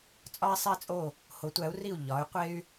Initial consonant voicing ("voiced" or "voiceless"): voiceless